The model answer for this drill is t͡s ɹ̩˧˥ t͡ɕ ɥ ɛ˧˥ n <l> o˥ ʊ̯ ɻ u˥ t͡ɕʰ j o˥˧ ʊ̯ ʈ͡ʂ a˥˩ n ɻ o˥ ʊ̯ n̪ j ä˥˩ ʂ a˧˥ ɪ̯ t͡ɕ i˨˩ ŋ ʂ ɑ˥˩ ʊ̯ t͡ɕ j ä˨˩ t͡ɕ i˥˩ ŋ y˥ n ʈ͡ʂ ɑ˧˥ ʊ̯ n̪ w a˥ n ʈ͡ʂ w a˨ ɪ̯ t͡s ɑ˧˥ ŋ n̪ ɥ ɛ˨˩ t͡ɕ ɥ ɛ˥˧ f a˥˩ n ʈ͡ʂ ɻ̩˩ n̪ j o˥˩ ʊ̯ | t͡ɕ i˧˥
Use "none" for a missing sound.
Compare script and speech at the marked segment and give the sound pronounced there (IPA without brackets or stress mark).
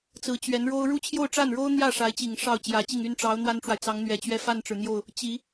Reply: ɻ